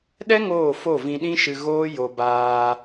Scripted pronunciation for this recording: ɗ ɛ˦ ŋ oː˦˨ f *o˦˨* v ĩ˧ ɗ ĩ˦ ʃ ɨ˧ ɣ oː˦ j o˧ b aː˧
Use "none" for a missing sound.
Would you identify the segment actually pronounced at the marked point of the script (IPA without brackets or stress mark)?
o˦˨